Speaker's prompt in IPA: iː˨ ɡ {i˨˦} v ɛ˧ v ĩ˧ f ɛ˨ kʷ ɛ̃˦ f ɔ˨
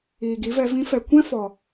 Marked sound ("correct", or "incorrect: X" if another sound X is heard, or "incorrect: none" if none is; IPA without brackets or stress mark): correct